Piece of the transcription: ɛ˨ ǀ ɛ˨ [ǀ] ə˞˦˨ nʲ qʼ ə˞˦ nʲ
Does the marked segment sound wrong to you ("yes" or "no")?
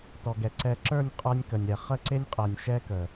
yes